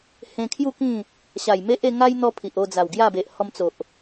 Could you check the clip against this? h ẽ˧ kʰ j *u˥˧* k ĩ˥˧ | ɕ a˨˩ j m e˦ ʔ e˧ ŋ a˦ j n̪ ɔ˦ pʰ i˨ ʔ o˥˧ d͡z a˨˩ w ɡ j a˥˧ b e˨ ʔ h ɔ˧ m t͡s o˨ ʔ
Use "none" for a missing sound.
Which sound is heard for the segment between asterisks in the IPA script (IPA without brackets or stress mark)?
u˥˧